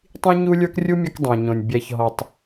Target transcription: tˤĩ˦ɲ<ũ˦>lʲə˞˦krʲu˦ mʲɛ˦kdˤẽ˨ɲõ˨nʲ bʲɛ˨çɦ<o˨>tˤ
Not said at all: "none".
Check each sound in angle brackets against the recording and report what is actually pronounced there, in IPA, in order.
u˦, ɔ˨

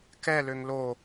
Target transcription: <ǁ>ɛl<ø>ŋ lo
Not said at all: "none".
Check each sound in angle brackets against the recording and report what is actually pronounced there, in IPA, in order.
k, ø

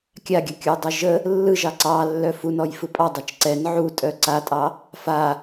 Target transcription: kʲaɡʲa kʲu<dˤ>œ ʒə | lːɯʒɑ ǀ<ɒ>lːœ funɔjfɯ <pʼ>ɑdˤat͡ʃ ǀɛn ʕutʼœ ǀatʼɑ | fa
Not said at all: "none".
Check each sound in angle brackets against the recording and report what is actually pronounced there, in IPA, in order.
dˤ, ɑ, pʼ

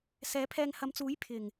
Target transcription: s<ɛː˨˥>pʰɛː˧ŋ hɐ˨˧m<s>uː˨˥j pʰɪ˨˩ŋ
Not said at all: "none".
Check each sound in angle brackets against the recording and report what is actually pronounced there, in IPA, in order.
ɛː˨˥, t͡s

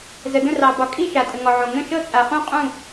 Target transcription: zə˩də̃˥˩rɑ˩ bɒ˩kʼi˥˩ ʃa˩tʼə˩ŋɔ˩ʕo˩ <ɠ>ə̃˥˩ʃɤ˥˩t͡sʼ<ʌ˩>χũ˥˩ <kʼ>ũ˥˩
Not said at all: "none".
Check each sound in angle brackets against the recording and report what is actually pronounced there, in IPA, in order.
ŋ, a˩, qʼ

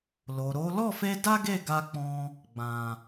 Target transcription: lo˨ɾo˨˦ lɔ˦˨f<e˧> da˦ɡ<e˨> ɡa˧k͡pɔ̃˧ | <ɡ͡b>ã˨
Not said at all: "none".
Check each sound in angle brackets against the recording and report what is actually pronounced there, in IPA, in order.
e˧, e˦˨, ɡ͡b

